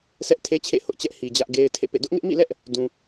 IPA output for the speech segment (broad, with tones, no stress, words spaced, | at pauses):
sʰɛ˦ʔtʰe˦ t͡ɕʰḛ˦˨hʊ˦ʔt͡ɕɛ˦ʔhi˨ d͡ʑä˦ʔɡe˦ɪ̯ tʰḛ˦˨pḛ˦˨ dʊ˦ʔŋɪ˦ʔmḭ˦˨lɛ˦ʔ | dũ˨